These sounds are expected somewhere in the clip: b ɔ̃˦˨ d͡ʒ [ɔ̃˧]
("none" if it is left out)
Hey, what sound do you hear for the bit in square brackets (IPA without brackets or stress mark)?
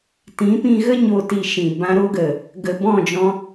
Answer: ɔ̃˧